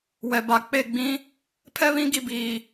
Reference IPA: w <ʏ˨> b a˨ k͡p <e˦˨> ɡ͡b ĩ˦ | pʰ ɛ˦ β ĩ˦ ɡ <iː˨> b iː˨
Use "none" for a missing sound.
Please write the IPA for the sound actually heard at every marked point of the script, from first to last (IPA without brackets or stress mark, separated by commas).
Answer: ɛ˨, e˦˨, i˨